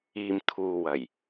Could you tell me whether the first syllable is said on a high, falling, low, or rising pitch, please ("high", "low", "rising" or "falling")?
low